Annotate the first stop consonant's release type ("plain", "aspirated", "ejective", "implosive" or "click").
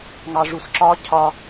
click